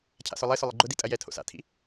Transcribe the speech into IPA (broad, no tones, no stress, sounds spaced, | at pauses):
cʰ a̰ s ʊ lˠ ɪ s ʊ lˠ ɪ ɡ͡ǃ ʊ d i tʼ ɐ j ɛ tʰ o̰ s a̰ tʰ ḭ